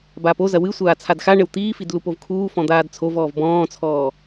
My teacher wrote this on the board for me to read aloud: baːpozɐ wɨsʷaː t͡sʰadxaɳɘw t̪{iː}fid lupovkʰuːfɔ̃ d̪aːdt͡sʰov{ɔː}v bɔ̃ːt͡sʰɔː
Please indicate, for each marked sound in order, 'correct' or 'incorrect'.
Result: correct, correct

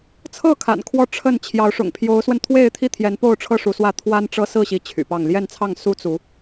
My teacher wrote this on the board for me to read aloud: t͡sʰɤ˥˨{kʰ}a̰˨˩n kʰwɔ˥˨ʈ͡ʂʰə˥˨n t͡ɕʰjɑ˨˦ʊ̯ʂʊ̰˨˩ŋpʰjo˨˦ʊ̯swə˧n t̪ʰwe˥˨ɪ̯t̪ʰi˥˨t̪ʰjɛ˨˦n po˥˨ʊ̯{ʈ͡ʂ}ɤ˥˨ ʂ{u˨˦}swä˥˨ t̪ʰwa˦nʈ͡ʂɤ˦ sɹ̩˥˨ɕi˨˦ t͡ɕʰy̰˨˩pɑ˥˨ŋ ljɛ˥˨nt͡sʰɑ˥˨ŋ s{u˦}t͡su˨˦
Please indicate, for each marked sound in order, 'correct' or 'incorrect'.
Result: correct, incorrect: ʈ͡ʂʰ, correct, correct

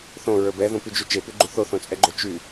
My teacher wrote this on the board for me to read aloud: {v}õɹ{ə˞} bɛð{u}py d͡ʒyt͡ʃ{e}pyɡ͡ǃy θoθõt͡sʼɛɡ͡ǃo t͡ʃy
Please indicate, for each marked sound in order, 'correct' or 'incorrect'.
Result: incorrect: θ, correct, incorrect: ũ, correct

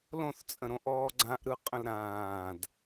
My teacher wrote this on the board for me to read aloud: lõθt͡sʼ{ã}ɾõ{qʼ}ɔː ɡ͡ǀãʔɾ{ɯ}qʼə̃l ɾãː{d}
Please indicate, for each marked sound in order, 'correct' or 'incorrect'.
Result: incorrect: ə̃, incorrect: ʔ, correct, correct

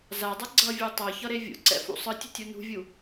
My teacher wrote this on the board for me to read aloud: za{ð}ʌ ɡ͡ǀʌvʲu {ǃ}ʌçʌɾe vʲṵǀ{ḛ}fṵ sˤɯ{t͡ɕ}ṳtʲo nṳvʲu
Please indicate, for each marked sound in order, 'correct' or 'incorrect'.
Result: incorrect: dˤ, incorrect: tˤ, incorrect: ɛ̰, incorrect: tʲ

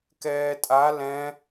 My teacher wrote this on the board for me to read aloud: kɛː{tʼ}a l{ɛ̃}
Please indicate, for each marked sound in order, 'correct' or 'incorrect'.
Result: correct, correct

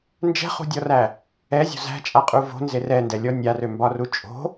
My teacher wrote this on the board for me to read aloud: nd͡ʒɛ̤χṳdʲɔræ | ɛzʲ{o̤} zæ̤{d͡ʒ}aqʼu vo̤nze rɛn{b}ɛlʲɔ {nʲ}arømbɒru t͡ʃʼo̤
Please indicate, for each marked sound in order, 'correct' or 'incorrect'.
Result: correct, incorrect: t͡ʃʼ, incorrect: d, correct

